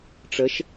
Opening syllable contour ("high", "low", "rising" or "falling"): rising